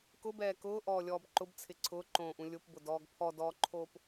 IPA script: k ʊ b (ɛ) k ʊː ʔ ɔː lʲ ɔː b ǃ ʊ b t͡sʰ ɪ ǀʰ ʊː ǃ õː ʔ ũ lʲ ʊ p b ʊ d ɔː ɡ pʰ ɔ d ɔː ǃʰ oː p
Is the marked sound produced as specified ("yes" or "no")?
no